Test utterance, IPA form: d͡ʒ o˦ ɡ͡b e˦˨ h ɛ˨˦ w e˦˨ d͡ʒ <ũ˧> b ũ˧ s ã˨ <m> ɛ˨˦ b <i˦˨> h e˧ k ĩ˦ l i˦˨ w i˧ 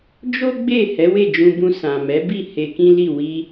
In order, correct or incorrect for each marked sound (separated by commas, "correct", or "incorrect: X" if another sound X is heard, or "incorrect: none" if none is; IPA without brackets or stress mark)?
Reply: correct, correct, correct